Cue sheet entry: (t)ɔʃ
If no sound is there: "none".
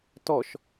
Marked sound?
t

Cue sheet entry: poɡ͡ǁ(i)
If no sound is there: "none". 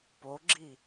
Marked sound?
i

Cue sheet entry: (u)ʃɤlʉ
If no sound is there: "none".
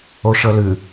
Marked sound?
o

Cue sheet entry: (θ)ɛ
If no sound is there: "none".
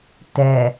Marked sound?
t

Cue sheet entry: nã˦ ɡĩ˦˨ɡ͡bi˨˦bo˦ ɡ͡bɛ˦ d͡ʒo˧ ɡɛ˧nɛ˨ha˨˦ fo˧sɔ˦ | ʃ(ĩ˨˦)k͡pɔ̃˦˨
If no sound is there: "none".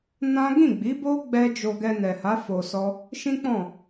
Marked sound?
ĩ˦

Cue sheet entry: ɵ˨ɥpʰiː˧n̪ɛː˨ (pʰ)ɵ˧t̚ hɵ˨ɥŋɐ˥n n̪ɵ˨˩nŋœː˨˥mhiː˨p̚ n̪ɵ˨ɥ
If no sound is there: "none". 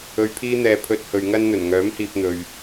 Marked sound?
pʰ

